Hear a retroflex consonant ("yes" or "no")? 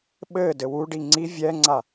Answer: yes